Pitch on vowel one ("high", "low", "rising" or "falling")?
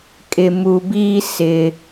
low